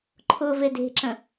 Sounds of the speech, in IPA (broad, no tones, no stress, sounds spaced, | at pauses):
ǃʰ ʊ v e d e̤ ǁ ə̃